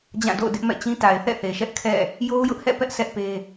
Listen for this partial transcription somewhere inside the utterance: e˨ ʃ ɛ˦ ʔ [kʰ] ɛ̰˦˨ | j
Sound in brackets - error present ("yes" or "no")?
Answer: no